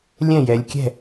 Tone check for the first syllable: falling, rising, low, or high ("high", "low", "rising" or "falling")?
falling